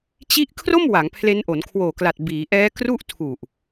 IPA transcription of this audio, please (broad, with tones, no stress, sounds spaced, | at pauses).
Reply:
t͡ɕ i˦˥ ʔ kʰ r o˥˩ m w a˩˦ ŋ pʰ l e˦˥ n ʔ o˩˦ n kʰ w oː˨˩ k l a˨˩ t̚ b iː˩˦ ʔ ɛː˦˥ k r u˥˩ ʔ tʰ u˨˩ ʔ